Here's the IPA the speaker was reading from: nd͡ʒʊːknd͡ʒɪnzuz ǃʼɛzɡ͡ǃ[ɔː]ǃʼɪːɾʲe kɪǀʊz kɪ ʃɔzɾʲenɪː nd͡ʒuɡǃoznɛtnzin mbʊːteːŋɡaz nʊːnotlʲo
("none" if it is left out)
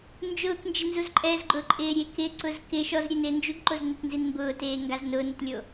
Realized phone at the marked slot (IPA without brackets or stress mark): ʊː